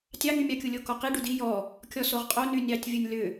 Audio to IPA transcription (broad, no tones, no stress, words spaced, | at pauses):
tʲɑŋymʲɑkʲu lʲokɔqi ɖudi jɔ | kʲɔsoʁqʼo nynʲɑtʲ vʲunʲlʏ